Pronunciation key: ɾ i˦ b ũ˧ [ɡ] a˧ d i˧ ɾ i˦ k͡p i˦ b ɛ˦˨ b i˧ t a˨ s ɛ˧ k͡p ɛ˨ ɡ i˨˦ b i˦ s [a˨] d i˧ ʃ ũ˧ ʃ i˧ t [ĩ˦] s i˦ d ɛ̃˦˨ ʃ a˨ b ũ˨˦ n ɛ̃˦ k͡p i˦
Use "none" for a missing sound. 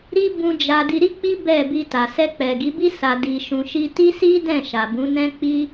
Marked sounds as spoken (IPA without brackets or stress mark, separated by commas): d͡ʒ, a˧, i˦